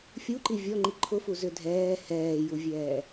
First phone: fʲ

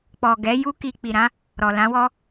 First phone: k͡p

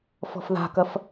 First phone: f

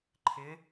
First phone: ǃʰ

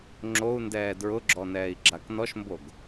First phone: ŋ͡ǁ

